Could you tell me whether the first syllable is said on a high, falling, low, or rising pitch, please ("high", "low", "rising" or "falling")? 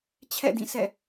falling